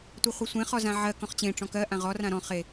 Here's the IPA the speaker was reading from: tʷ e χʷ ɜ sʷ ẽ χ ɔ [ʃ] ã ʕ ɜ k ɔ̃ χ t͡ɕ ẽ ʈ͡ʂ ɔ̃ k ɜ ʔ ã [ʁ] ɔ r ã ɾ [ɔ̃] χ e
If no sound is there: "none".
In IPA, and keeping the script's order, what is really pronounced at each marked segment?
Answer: z, ʁ, ɔ̃

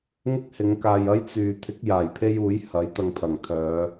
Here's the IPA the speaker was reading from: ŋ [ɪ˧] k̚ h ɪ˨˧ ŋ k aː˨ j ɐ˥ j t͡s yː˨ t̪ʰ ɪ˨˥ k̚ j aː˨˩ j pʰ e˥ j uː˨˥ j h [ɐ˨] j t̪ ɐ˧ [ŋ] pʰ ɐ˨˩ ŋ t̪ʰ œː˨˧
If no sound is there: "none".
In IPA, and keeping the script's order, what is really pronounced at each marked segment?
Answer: ɪ˥, ɐ˨˥, ŋ

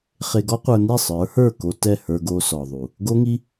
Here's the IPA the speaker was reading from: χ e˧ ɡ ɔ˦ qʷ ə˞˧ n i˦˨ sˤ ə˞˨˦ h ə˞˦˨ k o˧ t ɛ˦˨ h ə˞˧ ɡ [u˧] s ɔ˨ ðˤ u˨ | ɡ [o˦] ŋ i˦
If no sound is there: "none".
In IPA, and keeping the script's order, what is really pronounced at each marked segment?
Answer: o˧, o˦

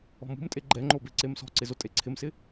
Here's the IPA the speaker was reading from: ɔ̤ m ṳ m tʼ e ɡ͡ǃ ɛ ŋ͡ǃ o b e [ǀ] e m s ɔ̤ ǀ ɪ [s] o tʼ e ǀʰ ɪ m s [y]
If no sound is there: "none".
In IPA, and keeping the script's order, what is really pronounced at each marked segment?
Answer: ǀ, z, ɪ

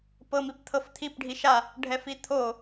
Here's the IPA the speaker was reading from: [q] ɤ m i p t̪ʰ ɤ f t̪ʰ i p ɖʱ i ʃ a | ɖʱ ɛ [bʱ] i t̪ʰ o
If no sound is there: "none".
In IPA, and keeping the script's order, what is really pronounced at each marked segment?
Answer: p, f

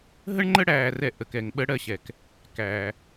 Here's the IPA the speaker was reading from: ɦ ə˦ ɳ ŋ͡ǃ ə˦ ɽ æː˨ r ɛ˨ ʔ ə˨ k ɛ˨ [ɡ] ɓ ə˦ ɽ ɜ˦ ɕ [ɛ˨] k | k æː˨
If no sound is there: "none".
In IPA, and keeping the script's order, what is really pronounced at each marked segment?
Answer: ŋ, ɛ˨

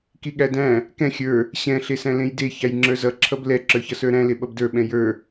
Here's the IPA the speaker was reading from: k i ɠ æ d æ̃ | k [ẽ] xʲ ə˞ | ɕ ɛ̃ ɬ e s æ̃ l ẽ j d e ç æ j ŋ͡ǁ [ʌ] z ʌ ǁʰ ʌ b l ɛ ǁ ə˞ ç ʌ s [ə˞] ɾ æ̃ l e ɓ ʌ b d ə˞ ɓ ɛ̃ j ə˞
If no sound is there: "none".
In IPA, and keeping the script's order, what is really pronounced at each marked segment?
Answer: ɛ̃, ə˞, ə˞

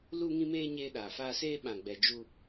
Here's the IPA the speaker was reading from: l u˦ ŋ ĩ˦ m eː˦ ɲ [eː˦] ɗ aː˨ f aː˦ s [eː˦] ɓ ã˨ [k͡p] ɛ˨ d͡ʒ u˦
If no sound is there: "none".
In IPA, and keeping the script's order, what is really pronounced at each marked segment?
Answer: eː˦, eː˦, ɡ͡b

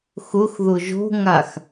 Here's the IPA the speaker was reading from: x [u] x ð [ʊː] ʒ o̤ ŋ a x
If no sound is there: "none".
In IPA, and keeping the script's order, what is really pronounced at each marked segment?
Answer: ʊ, ʊ

